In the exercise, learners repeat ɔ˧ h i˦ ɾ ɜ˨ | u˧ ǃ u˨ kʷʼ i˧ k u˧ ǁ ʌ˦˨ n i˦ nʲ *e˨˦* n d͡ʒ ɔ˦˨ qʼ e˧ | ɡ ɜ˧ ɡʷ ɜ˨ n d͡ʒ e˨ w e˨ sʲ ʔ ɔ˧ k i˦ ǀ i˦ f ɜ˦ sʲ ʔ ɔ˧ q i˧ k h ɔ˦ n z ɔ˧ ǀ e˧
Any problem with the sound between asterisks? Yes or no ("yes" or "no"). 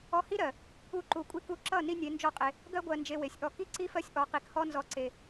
no